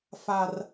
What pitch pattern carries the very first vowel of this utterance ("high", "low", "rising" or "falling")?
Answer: high